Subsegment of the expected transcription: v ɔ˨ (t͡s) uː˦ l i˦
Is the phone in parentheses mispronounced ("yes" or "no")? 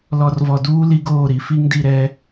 yes